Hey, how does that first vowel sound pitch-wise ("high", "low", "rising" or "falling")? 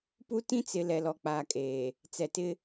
high